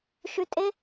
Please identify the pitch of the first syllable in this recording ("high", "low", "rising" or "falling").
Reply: low